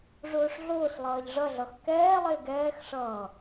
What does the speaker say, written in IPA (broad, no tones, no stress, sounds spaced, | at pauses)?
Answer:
ʐ ʊː ʂ ɮ ʊː s lˠ ʌː ʎ ʐ ʌ ɮ ʌ x k ɛː lˠ ɪː ɡ ɛː x ʂ ʌː